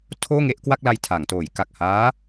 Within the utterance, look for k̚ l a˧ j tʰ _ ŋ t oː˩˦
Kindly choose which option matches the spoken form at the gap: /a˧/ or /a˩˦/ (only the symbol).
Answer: a˩˦